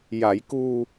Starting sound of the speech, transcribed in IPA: j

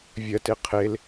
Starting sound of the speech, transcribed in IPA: vʲ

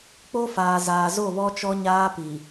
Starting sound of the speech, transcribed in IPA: k͡p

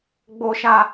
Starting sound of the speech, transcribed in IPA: ɡ͡b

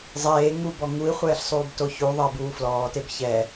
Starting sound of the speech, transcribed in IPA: zˤ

